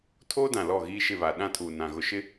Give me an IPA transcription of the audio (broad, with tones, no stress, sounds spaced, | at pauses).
tʰ oː˦ d ã˨ l ɔ˦˨ ɣ iː˦ ʃ ɪ˦˨ β a˨ ɗ ã˦˨ tʰ uː˨ n ã˨ ɣ ʊ˨ ʃ ɪ˦